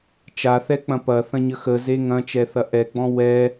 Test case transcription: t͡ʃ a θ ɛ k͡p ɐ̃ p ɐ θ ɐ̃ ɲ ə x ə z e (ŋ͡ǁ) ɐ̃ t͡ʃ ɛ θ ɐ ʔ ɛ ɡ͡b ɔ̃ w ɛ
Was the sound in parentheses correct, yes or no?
no